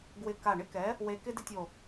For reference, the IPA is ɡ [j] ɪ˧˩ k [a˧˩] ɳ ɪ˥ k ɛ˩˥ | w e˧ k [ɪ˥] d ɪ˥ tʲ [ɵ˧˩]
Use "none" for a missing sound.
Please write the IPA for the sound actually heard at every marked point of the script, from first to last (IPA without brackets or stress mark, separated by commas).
w, a˧˩, ɪ˥, o˧˩